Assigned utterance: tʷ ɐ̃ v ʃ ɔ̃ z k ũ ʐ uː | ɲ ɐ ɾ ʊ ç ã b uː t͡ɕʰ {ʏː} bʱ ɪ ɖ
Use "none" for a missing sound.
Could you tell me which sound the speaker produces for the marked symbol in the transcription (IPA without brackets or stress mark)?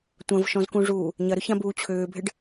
ʏː